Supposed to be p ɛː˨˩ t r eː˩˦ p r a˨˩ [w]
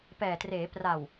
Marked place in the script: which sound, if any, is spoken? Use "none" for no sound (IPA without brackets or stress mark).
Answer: w